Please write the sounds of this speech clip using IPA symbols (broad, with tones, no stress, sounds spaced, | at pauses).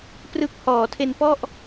p r ɯ˦˥ k̚ h ɔː˩˦ tʰ e˧ n p ɔ˥˩ ʔ